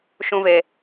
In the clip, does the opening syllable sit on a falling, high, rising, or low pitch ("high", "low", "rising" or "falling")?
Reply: high